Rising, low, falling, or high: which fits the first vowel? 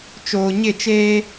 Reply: low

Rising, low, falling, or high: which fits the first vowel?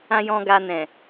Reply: low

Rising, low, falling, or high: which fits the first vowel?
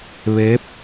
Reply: rising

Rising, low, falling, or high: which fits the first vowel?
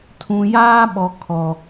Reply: low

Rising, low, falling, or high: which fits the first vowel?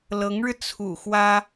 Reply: rising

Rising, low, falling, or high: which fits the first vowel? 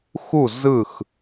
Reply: falling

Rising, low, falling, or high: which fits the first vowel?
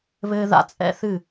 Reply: high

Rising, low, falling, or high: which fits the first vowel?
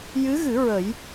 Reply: rising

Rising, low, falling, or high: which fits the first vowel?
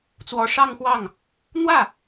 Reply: rising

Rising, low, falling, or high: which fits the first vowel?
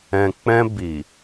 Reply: low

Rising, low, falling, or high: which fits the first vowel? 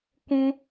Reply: high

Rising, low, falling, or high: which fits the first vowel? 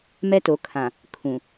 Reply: high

